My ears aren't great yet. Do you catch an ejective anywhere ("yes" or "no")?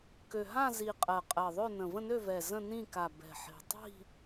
yes